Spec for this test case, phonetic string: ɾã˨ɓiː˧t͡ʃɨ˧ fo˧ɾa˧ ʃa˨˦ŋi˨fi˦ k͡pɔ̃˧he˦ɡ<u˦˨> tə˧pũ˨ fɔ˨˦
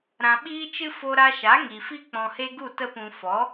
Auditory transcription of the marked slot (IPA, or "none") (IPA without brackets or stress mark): u˦˨